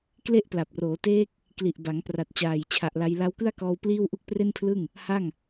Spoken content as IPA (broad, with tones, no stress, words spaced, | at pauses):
kle˥˩ʔpla˨˩p̚roː˩˦teː˦˥k̚ | kli˨˩ʔba˩˦ŋ pra˨˩t̚t͡ɕaː˨˩jt͡ɕʰa˨˩ʔla˧j la˦˥wkɯ˥˩a̯kɔː˧w pliː˥˩wʔu˥˩k̚pre˥˩npʰlɯ˥˩ŋ | ha˥˩ŋ